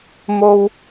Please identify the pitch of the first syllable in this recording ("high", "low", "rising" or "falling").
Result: high